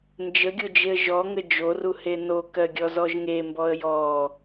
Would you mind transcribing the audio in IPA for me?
n d͡ʒ ə ɡʲ o d͡ʒ e ə̯ ʒ ɔ ŋ ə d͡ʒ o r u h e n o k ɜ ɡʲ ɔ z ɔ ʒ ŋ e m b ɔ ə̯ j ɔ

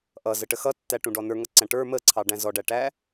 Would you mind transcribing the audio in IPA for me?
ʔ ʌ z ə ʈ ə x ʌ tː æ ʈ ũ ɖ ɔ n ə˞ ŋ ʌ ǀ æ̃ ʈ ə˞ m ə ǀʰ ɑ ɖ æ̃ z ɔ ɖ æ ʈ æ

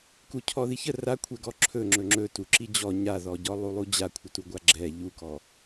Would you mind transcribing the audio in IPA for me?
k u cʰ ɔ ð i ç ə r a kʷʰ ɛ ɡ ɔ ǁʰ ɵ ŋ͡ǁ ɵ ŋ͡ǁ ɵ t u ǁ i d͡ʑ ɔ ɲ a ð ɔ ɟ ɔ lˠ u lˠ u d͡ʑ a kʷʰ ə t u ɡʷ a ɡ͡ǁ ɛ ʎ u k ɔ

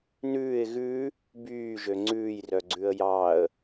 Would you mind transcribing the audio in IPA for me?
n ʉː ɪ̯ ɣ ʉ | b yː ʒ ø ŋ͡ǀ ʉː j r œ ɡ͡ǀ ʉ ə̯ j ɑ ə̯

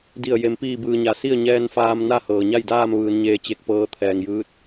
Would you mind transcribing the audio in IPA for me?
d i˧˩ ə̯ j e˩ m p iː˧˩ b ɯː˩ ɲ a˩˧ s i˥˨ ə̯ ɲ ɛː˧ n f aː˧ m n a˥˨ h ɤː˩ ɲ a˥˨ j d aː˥˨ m ʋ ɯː˩˧ n ɲ eː˧ t͡ɕ e˧˩ k̚ p ɤː˧ t̪ʰ ɛː˩ ŋ j ɯː˧˥ t̚

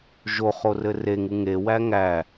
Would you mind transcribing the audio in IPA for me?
ʒ o χ o r ɘ r e ŋ u ŋ e w æ ŋ æ

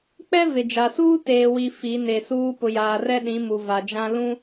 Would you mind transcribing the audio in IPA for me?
k͡p ɛ˦ v ɪ˨ d͡ʒ a˨ s uː˦ t eː˨ w i˨ f i˨˦ n e˨ s uː˦ p ʊ˨ j aː˨ r ɛ˦ ɗ ĩ˨˦ m u˨ v a˨ d͡ʒ ã˦ l ũ˦

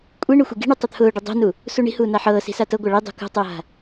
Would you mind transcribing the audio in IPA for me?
kʷʼ i ɳ ʊ xʷ i ɡ i̤ ɳ y tˤ u t̪ʰ ʊː ɖ ʊ dˤ i̤ n u | s u ɳ i̤ h uː n a ħ ɤː s i̤ s a t ɤ ɡʷ a ɭ i dˤ ṳ k ṳ tˤ ʊː ɦ a̤

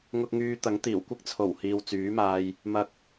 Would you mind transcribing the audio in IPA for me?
ŋ ʊ˧ k̚ ŋ yː˧ t̪ ɐ˨˥ ŋ t̪ iː˨˩ w kʷ ɪ˥ k̚ t͡sʰ o˨˩ w h iː˨ w t͡s yː˨˥ m aː˧ j | m ɐ˧ k̚

